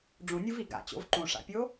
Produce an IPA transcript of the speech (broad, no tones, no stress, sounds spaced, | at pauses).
ɖ͡ʐ ũ nʲ u v i ɡ a̰ t͡ɕ o̰ v ǃ ũ ʂ a̰ pʲ o